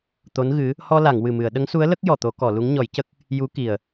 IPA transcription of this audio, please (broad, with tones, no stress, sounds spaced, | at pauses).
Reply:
t̪ o˧˥ n ɣ ɨ˧˥ | h ɔ˧ l a˨˩˨ ŋ w ɨ˨˩ m ɨ˨˩˨ ə̯ ɗ ə˧˥ ŋ s u˧˥ ə̯ l ə˦˥ k̚ j ɔ˨˩ t̪ o˨˩˦ k ɔ˨˩˨ l u˧˥ ŋ ɲ ɔ˨˩˦ j c ə˦˥ k̚ | j u˧˥ k i˨˩ ə̯